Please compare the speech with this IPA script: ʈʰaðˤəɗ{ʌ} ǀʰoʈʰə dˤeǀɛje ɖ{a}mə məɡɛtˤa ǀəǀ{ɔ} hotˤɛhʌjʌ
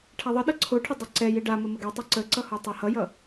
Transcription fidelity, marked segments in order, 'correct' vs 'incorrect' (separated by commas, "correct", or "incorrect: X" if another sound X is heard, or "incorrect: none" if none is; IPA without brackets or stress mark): correct, correct, incorrect: ʌ